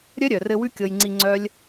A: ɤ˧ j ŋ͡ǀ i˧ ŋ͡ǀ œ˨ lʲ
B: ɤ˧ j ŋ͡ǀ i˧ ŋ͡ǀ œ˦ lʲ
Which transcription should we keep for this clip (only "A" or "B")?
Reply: B